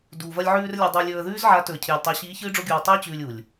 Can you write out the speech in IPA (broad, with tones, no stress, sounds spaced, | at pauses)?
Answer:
d uː˨ v ɐ˧ lʲ ʕ ʉː˧ r lʲ a˧ dˤ o˧ ə̯ lʲ ɵː˧ ə̯ ð ʉː˦ z ʕ a˨˦ t ɵ˨ ə̯ cʰ eː˨ lʲ tˤ ɨ˨ ʊ̯ ɕ iː˨˦ ç ɨː˦ ɖ͡ʐ o˦ ɡʲ uː˧ tˤ i˦ ʊ̯ t͡ɕ ʉː˧ lʲ u˨ lʲ